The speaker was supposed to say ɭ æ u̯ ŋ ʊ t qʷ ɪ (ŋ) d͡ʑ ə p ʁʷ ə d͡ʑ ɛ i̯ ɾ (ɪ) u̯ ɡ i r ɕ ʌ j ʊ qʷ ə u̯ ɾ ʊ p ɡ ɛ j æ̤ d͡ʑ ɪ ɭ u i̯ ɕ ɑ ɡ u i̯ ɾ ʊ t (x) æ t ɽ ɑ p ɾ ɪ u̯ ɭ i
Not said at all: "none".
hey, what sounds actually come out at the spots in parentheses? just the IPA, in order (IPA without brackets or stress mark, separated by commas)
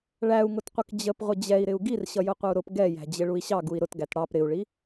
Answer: k, ɪ, ɡ